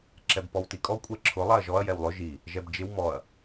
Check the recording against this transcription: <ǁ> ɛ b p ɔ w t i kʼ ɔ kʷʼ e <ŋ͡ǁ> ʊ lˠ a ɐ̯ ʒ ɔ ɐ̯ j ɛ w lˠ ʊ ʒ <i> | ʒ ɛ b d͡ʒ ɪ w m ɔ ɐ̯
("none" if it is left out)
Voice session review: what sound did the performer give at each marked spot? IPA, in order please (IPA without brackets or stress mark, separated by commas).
ǁ, ǁʰ, i